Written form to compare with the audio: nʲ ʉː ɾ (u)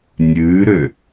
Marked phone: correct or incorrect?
incorrect: ø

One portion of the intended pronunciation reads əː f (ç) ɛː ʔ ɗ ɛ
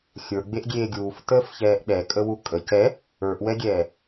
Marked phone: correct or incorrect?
correct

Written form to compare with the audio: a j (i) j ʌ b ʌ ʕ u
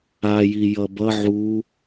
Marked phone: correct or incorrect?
correct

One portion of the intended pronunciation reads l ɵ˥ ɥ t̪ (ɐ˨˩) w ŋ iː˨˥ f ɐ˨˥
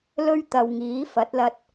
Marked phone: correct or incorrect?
incorrect: ɐ˨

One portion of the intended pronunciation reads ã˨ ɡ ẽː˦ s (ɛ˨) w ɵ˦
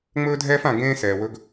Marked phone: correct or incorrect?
incorrect: ɛː˨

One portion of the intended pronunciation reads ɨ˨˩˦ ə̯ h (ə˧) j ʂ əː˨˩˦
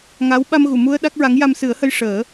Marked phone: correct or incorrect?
correct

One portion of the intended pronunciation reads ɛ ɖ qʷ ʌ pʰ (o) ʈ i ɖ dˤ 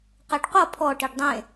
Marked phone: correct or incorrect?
incorrect: ɔ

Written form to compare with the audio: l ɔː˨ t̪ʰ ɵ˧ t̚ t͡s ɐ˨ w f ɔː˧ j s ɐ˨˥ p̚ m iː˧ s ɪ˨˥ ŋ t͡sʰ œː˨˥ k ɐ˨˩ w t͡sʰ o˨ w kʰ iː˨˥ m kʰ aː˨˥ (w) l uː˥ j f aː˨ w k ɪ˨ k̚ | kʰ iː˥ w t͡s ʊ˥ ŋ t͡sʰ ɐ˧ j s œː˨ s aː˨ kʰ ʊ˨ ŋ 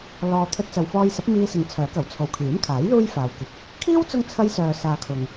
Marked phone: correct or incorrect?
incorrect: j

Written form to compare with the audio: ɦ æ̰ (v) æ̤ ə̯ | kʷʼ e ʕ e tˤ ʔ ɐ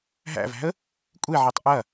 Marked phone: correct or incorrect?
correct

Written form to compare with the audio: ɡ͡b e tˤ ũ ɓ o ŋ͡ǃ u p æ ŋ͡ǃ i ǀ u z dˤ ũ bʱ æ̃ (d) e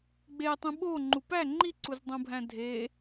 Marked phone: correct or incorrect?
incorrect: dʱ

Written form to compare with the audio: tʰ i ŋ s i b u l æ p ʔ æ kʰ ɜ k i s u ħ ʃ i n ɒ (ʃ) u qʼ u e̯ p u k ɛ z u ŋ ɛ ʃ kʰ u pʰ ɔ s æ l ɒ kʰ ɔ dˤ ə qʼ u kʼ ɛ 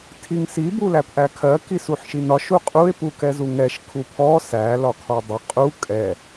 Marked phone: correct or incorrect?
correct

